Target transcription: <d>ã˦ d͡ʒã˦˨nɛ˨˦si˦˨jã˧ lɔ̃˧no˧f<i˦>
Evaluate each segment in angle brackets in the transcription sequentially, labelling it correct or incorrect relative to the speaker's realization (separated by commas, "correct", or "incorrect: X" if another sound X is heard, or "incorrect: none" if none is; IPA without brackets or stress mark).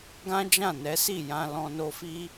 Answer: incorrect: ɡ, correct